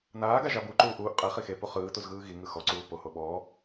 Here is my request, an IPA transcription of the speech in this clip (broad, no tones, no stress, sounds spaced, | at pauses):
n aː ɡ a ʒ a b u ǃ uː ʔ uː ʔ qʼ ɛ χ i x e p u χ ɯː t u z ɣ ɯː ɣ i ŋ ɯ x ɔ ǀ uː p o h o ɓ ɔ